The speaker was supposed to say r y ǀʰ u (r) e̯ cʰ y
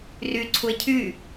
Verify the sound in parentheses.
incorrect: none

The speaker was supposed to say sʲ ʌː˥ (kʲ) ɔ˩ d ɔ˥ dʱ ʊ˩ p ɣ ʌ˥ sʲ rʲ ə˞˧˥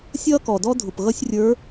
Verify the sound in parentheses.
incorrect: k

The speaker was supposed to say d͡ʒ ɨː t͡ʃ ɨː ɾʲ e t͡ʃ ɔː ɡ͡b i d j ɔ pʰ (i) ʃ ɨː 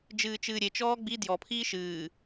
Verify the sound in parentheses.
incorrect: iː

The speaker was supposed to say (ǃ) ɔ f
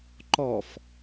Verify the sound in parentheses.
correct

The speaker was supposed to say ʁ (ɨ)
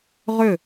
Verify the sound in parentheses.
incorrect: ʏ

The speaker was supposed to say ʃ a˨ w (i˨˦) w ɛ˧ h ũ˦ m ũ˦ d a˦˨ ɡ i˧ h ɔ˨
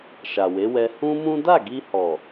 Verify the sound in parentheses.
incorrect: e˨˦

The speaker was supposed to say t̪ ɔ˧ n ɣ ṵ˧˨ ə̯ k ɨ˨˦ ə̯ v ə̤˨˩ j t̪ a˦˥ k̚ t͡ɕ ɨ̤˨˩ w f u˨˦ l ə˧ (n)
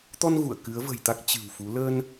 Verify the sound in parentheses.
correct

